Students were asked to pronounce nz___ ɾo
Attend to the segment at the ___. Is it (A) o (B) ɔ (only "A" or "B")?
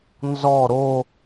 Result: B